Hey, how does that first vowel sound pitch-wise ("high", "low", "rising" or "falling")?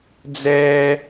high